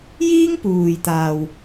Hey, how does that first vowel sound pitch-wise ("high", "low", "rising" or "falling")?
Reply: high